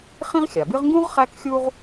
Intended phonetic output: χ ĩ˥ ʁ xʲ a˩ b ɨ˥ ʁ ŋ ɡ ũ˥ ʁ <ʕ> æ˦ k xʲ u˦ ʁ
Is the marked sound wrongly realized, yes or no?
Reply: yes